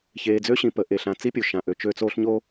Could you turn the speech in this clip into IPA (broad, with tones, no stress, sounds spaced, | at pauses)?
ç eː˨ d͡z ø˦ ɕ ĩ˨ p ə˨˦ ʔ e˨ ɬ ã˨˦ t͡s i˦ pʲ o˨ ʃ ã˨ ʔ ø˨ t͡ʃ ø˦ t͡s oː˦ ɬ ɲ o˦